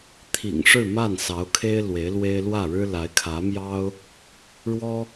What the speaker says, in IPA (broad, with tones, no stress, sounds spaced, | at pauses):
t̪ʰ ḭ˨˩ ŋ ʂ ɻ̩˥˧ m a˥˩ n s ɑ˧˥ ʊ̯ kʰ e˥ ɪ̯ l w e˧˥ ɪ̯ l w e˥ ɪ̯ l w ä˥˩ ɻ ɻ̩˥ l a˧˥ ɪ̯ kʰ ä˧˥ m j ɑ˥ ʊ̯ | ɻ w ɔ˥